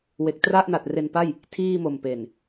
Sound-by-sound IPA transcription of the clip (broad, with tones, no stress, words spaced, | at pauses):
we˨˩k̚tra˥˩ʔna˨˩t̚ re˧npa˥˩j | tʰiː˥˩mo˨˩m pe˨˩n